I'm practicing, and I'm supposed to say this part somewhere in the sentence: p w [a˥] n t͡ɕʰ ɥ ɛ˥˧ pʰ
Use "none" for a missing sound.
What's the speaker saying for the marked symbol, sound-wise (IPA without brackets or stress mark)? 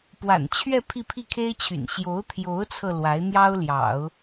a̰˨˩